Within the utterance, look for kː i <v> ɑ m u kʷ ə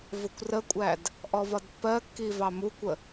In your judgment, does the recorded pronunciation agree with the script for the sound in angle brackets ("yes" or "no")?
yes